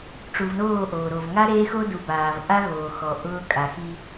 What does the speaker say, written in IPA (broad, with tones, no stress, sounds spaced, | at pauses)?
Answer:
ʈ͡ʂ u˨ v n oː˦˨ ʔ oː˨ ɾ o˨ v ŋ a˦ ɾ eː˦ x o˦ d u˨ b aː˨ v ʔ a˦ ɣ oː˨ x ɔ˨ ʔ ʊː˦ kʼ a˨ x i˦